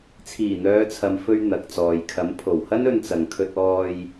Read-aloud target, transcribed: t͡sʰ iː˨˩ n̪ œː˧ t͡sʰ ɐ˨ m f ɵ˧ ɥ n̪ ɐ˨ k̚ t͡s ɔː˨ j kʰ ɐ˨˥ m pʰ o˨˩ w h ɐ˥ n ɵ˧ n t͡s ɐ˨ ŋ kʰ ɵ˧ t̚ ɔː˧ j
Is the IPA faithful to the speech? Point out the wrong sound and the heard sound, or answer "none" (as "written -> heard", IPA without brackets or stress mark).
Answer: œː˧ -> œː˨˧